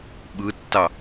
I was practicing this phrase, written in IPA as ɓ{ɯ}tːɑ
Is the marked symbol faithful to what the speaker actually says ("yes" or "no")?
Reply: yes